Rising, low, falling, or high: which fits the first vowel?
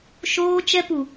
high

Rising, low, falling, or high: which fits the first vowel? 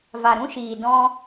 low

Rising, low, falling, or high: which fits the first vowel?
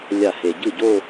falling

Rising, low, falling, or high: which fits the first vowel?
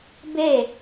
falling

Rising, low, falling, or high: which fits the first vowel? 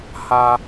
high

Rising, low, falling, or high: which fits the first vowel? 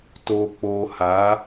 low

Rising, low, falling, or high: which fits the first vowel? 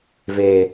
low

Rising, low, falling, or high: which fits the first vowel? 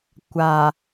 low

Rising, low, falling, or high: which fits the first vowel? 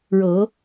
rising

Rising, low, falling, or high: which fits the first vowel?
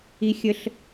high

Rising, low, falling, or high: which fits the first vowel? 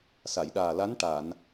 low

